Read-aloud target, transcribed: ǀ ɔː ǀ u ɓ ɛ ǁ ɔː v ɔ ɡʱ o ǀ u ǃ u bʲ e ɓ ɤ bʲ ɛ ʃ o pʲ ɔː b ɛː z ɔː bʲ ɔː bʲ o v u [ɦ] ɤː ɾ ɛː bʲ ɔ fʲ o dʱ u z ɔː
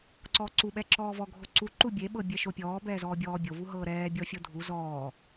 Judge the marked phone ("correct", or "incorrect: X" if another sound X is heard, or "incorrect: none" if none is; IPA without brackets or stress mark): correct